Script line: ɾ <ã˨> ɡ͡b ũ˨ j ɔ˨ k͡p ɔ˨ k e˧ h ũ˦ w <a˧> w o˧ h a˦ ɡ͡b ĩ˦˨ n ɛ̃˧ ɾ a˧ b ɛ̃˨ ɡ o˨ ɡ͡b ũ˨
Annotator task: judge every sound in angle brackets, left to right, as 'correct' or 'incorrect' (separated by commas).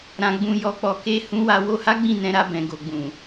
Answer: correct, correct